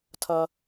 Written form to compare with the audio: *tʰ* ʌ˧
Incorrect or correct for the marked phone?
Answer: correct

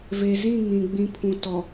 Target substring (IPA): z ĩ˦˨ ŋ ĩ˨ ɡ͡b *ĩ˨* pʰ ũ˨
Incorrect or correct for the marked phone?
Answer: correct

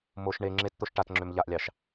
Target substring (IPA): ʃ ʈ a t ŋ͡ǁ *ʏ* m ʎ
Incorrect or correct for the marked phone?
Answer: correct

